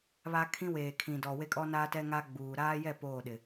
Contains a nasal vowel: yes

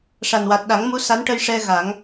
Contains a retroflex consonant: yes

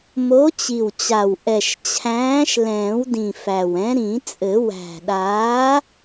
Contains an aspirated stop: yes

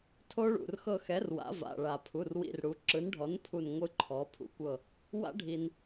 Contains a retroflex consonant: yes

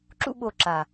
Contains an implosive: yes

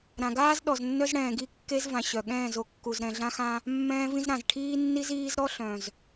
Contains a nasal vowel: yes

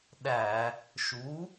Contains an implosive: yes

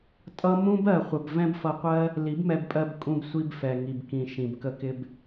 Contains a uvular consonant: yes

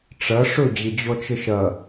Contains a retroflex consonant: yes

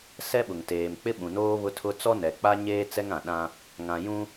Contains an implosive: yes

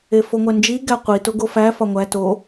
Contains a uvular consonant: yes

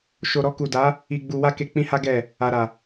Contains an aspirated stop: no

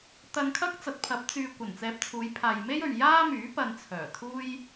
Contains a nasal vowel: no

